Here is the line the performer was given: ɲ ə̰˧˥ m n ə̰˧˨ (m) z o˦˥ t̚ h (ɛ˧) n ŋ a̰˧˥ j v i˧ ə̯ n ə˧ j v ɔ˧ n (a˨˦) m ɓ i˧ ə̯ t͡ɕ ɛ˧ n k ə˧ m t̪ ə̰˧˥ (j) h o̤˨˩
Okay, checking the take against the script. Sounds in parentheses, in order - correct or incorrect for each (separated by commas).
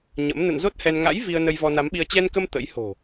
incorrect, correct, correct, correct